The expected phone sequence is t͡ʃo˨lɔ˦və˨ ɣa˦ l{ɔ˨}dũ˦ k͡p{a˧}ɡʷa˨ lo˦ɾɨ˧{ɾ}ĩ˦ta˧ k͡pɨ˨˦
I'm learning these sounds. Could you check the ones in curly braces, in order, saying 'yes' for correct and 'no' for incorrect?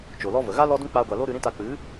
no, yes, yes

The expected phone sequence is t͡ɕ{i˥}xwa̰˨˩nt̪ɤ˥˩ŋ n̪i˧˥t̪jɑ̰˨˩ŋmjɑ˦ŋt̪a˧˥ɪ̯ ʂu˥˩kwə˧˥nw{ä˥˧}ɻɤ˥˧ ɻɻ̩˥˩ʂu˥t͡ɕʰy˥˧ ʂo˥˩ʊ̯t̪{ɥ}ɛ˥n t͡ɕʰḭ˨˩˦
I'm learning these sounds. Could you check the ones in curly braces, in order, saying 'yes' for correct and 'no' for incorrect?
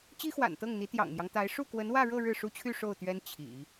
yes, yes, yes

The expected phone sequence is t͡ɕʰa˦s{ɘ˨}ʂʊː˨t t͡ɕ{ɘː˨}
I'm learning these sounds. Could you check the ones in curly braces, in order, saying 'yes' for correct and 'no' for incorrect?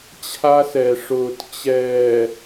no, no

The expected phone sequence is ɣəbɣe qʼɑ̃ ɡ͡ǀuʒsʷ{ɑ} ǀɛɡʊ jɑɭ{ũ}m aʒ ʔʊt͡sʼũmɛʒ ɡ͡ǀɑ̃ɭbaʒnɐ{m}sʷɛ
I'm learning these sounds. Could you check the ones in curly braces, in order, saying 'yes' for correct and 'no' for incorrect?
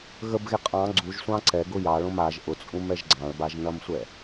no, no, yes

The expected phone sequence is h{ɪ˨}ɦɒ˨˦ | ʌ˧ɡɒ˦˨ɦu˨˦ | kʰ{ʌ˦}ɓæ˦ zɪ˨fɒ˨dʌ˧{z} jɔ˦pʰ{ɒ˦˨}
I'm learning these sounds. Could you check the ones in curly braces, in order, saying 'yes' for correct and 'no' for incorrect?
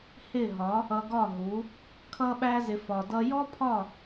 no, yes, no, yes

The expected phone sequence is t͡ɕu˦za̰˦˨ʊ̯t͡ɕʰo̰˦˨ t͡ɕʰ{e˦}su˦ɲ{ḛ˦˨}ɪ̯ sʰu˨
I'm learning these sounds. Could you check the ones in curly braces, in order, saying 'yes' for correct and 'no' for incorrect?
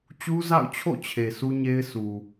no, no

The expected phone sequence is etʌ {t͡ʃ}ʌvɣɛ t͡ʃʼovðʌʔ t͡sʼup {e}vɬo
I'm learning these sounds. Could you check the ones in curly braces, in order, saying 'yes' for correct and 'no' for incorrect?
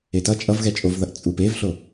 no, yes

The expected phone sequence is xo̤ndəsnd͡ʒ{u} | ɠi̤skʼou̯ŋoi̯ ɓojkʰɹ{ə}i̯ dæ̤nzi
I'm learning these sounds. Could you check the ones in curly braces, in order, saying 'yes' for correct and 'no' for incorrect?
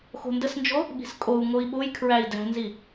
no, no

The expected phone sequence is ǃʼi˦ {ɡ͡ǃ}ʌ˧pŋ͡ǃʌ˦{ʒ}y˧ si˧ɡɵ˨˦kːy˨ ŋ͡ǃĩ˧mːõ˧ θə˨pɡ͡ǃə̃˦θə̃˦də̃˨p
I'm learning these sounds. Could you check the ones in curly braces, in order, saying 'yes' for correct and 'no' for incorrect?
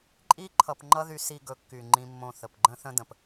no, no

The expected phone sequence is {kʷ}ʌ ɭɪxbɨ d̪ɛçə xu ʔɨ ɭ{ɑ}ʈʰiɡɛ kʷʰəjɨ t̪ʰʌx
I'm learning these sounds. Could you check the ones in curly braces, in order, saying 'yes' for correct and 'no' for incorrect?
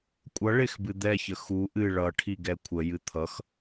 no, no

